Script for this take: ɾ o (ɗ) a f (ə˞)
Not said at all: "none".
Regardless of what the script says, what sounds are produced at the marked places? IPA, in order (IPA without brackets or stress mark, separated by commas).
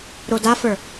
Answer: d, ə˞